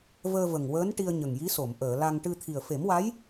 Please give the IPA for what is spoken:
vəː˧və˨˩ŋwəː˧˥n ʈi˧ə̯ɲə˨˩ŋji˧˥so˨˩˨m ʔəː˨˩˨la˧ŋ ʈɨ˧ t̪ʰi˨˩ə̯fe˨˩˦mwa˧˥j

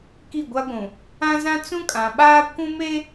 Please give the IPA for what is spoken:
ki˦˨ɡʷa˦ɡʷũ˨ | ã˦zã˦ t͡sũ˦kʼã˨ɓaː˦ kʷũ˦me˦

